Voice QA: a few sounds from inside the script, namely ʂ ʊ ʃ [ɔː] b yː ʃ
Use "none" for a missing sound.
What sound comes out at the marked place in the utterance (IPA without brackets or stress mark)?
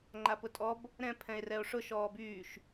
ɔː